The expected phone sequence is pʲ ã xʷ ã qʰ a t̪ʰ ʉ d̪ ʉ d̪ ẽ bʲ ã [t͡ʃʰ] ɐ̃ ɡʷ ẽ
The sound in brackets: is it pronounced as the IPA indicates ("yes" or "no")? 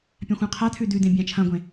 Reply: yes